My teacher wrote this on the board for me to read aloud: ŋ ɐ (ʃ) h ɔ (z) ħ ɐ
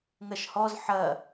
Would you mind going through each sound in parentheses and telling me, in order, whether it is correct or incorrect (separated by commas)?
correct, correct